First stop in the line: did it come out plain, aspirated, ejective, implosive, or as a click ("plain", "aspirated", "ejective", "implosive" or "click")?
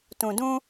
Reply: plain